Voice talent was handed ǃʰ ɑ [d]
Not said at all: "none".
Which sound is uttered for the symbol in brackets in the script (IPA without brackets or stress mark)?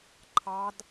d